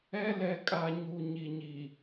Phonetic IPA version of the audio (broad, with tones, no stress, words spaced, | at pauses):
ɛ˦lɛ˨kʼa˨ ɲu˨ ɲi˨ɲi˨